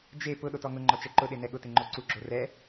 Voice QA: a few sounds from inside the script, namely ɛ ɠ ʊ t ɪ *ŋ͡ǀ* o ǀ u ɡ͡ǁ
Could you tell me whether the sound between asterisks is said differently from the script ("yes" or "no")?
yes